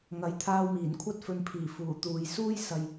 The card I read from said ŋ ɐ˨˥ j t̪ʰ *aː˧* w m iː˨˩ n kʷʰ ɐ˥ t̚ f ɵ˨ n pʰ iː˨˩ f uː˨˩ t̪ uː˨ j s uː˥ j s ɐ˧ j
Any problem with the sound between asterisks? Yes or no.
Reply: no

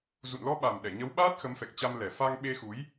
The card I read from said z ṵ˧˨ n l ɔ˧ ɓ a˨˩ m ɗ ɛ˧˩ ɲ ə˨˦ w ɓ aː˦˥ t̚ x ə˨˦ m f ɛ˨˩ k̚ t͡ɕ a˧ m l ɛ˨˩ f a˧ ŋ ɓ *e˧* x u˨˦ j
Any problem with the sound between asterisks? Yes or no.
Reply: no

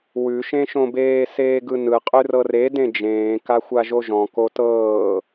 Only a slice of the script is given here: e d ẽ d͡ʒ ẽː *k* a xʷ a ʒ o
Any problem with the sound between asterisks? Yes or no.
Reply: no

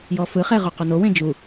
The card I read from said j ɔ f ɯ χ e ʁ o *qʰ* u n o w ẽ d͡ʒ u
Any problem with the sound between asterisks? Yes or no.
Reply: yes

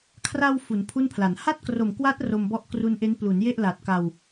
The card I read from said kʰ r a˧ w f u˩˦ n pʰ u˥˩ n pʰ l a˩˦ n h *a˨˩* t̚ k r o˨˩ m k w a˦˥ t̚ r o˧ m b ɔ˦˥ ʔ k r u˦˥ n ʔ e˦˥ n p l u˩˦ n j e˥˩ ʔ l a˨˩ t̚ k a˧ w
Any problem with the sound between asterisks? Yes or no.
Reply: yes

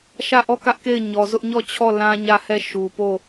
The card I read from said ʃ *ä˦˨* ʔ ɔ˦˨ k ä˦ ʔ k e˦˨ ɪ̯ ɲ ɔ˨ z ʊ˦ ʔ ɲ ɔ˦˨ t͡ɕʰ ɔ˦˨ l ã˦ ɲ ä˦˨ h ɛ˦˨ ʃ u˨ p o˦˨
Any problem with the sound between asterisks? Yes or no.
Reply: no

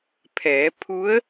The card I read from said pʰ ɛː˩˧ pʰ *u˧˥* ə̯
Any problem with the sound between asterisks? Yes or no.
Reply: no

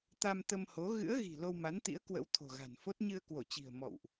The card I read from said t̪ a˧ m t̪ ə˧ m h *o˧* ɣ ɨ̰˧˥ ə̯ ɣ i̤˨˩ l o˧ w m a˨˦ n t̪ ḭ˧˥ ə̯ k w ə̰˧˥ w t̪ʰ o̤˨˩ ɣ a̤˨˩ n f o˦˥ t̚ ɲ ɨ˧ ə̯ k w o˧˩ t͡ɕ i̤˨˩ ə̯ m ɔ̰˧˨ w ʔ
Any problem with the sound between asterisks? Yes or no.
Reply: yes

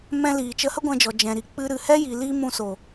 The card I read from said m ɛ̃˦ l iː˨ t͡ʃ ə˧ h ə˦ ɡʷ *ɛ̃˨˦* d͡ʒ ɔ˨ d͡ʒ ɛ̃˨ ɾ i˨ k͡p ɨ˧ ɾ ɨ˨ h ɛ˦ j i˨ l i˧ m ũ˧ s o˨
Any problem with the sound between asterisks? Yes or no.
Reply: yes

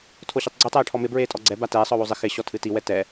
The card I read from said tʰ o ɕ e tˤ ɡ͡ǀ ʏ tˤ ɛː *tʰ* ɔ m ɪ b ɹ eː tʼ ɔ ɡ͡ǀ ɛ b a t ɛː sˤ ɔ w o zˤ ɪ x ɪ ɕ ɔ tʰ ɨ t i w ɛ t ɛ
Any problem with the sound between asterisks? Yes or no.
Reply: yes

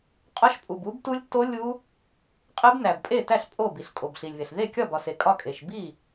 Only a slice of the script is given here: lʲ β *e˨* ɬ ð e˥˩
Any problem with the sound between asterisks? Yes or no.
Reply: no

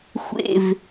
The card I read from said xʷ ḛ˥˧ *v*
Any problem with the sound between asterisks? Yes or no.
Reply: no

